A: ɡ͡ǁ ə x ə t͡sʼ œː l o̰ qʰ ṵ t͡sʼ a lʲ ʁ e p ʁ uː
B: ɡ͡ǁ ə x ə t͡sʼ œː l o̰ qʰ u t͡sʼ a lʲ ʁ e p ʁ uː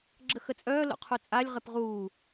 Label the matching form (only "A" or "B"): B